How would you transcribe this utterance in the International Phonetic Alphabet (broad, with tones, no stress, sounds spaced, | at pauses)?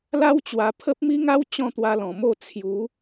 l a˦ w t͡ɕ w a˧ pʰ ə˦ p̚ m i˦ ŋ a˦ w t͡ɕ ɔ̃˥˧ t̪ w a˧ l ɔ̃˨˩ m o˥˧ t͡sʰ j u˨˦